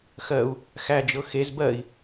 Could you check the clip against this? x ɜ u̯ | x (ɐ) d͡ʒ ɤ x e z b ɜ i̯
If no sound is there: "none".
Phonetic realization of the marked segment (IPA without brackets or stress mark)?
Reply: æ